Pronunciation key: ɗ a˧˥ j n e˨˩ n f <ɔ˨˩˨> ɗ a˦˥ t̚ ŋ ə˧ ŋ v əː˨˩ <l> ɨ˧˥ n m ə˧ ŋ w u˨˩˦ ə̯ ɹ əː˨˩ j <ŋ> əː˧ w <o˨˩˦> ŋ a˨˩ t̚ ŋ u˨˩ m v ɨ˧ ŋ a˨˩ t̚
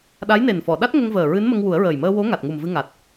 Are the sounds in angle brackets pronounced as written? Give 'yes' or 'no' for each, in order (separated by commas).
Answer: yes, no, no, no